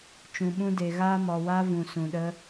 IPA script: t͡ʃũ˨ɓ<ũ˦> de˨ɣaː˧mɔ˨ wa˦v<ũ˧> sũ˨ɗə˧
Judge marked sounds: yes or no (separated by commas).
no, no